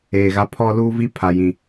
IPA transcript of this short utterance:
eː˨ ɣ a˦ pʰ ɔ˦ l uː˦ v i˦ pʰ a˨ j ĩ˨

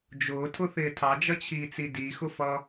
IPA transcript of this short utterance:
d͡ʒ ʊː tʰ ʊ θ ɪː tʰ ɑ d͡ʒ ʌ t͡ɕʰ iː t͡s i d i x ʊ f ʌ

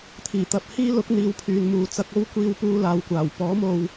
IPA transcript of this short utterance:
t̪ʰ iː˨˩ t̪ ɐ˧ p̚ h iː˥ l ʊ˨˥ k̚ n̪ iː˨˧ w pʰ yː˨ n m uː˨ t͡s ɐ˧ k̚ o˥ w kʷ iː˧ w p uː˧ l aː˨ w kʷ aː˨˩ w p ɔː˨˥ m o˨ w

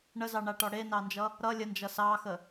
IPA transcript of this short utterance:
ɳ ə z ɑ ɳ a ʈ ɔ ɽ e n ɑ n d͡ʒ ʌ | ɾ ʌ lʲ ə n d͡ʒ ʌ s ɑ x ə

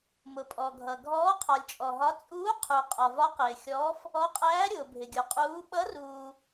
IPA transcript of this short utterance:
m ʊ˨ pʼ ɔ˨ ɡʱ ʌ˨ ɡʱ ɔː˧˥ qʰ ɒ˨ lʲ t͡ʃʼ ɔ˨ ɦ ɒ˧˥ t͡sʼ uː˧˥ qʰ u˨ qʼ ɒ˨ v ɒ˧˥ q ɪː˨ xʲ ɔː˧˥ f | ɔ˧˥ qʼ æː˧˥ ɾʲ ʊː˨ bʱ ɪ˨ ɡʲ u˨ qʼ uː˧˥ ɓ ʌ˧˥ r uː˨

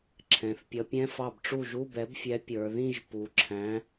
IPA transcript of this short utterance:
ǁʰ ɛ̃˩˧ θ pʲ ʌ˨˥ pʲ ɛ̃˧˥˧ f ɑ˥˩ b ʈ͡ʂ u˥˩ ʒ u˧˥˧ b ɛ˨˥ b fʲ ɛ˨˥ pʲ ə˞˩˧ ð ĩ˥˧ ʒ p u˩˧ ǁʰ æ̃˨˥

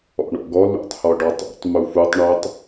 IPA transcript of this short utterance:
ɔ̰ ɳ ɔ̰ ɡ ɔ l ṵ tˤ h ɔ ɖ ɔ tˤ ṵ tˤ m u f u tˤ ɳ œ tˤ

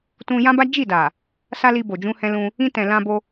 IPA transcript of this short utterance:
t ũ˧ j ã˦ b a˦ d͡ʒ i˦˨ d a˨ | s a˦ l i˧ b o˨ d͡ʒ ũ˧ h ɛ̃˧ l ũ˧ | ĩ˧ t ɛ̃˨ l ã˧ b o˧

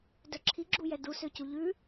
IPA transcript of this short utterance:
d œ ǁʰ i ɡ͡ǁ u j ɛ d u s ø c u ʎ ʉ

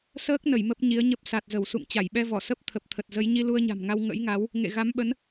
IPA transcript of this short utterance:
s əː˦˥ k̚ n ə˧˩ j m ə˦˥ p̚ ɲ i˨˦ ə̯ ɲ ə˦˥ p̚ s a˨˩ t̚ z ə˧˩ w s ṵ˧˨ ŋ t͡ɕ a˧˩ j ɓ ɛ˧ v ɔ˧˩ s ə˦˥ p̚ t̪ʰ ə˨˩ p̚ t̪ʰ ə˨˩ t̚ z ə˨˦ j ɲ i˧ l u˧ ə̯ ɲ a̤˨˩ m ŋ a˧ w ŋ ə̰˧˥ j ŋ a˨˦ w | ŋ ḛ˧˨ ɣ a˨˦ m ɓ ə˨˦ n

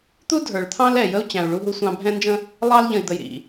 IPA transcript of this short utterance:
t̪ u˦ dʱ ə˞˨ ɭ t̪ʰ ɑ̃˦ l ɛ˨ j ə˦ u̯ t͡ɕ æ̃˨ u̯ ɭ u˦ ɦ u˦ sʷ ɑ̃˦ bʱ ɛ̃˦ n d͡ʒ ə̃˦ | lˠ ɑ˦ l ʎ ə̃˨ i̯ d̪ ə˨ j ɾ ḭ˨

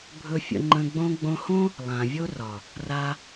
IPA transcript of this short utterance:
bʱ ɵ˧ fʲ ə̰˧ ŋ͡ǃ ə̃˧ ɡ͡b õ˧ ɡ͡b õ˧ h õ˦ | lˠ ã˨ vʲ o˦ r ɒ˨ | r a˦

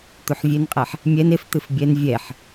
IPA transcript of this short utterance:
t̪ u ħ vʲ e n qʼ ɛ ħ | mʲ ɛ n e f t̪ ɨ f bʲ ɛ n vʲ ɛ ħ

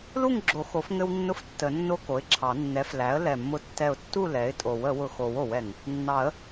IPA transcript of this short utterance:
l u˥˨ ŋ ɡ͡ǁ o˨˩˦ x o˩˥ f ŋ ɘ˦ w nː ʊ˦ f tː ə˨˩˦ nː o˦ k o˩˥ ɪ̯ ǁʰ ɑ˨˩˦ nː ɛ˩˥ f l æ˩˥ ə̯ l ɛ˧˩ mː ʊ˦ tː ɛ˥˨ ʊ̯ tː u˥˨ l ɛ˩˥ ɪ̯ tʼ o˨˩˦ w ə˨˩˦ w ʊ˧˩ x o˨˩˦ w o˨˩˦ w ɛ˧˩ ŋ | nː ɑ˨˩˦ ə̯

